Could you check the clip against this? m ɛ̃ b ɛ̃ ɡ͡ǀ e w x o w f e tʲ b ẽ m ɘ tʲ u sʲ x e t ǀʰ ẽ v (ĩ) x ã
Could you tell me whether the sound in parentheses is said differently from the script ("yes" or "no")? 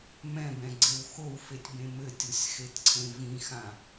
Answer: no